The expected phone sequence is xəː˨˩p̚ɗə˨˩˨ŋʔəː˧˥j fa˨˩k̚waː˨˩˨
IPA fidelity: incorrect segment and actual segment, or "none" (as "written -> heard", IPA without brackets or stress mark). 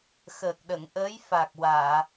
p̚ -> k̚